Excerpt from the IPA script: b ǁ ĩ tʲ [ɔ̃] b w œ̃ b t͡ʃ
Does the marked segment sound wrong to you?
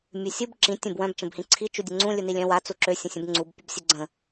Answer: yes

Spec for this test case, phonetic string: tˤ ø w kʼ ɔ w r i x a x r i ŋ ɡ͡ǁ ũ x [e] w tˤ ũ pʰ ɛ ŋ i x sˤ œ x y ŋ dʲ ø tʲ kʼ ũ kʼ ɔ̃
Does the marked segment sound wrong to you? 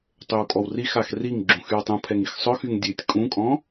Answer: yes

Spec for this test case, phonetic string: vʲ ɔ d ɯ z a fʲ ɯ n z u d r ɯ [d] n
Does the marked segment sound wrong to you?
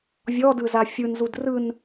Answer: yes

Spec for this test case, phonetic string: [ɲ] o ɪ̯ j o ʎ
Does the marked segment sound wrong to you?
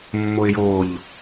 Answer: yes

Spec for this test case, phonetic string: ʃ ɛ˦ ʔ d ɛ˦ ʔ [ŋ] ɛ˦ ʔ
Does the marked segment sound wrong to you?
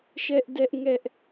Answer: no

